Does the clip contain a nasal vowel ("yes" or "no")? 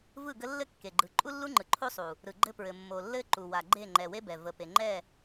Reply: no